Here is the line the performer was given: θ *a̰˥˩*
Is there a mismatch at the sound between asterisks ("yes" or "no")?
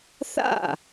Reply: no